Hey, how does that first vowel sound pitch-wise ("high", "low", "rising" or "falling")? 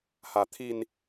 low